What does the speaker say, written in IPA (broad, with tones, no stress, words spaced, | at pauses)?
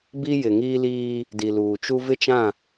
bi˦jɪ˨ ŋiː˦liː˦ | di˨luː˨t͡ʃu˦ vɪ˦t͡ʃã˦˨